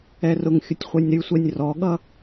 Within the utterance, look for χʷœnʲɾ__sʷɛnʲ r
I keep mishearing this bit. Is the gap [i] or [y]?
y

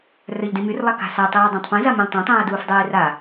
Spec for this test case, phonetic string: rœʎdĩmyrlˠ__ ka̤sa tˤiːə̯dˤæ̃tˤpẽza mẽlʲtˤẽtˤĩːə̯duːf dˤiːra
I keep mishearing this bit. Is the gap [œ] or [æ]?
æ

